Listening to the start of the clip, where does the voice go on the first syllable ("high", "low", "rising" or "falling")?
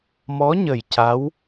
rising